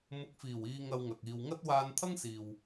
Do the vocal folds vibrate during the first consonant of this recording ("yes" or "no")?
yes